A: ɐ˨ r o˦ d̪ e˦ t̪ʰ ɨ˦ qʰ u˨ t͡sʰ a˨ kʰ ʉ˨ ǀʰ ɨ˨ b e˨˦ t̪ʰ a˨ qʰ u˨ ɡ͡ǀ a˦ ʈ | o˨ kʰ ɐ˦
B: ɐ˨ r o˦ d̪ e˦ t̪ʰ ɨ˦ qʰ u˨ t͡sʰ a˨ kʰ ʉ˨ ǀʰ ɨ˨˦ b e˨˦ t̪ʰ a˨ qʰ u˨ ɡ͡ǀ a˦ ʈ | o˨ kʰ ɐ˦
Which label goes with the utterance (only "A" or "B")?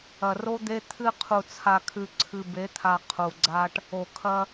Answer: A